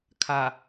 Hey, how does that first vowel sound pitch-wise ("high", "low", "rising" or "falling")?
low